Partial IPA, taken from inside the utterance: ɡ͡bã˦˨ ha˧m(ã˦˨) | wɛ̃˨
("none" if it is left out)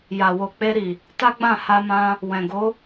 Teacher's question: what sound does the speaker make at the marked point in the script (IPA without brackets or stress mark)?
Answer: ã˧